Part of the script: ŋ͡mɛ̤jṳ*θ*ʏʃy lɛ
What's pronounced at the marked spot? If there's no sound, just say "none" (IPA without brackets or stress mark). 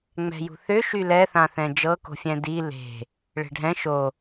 θ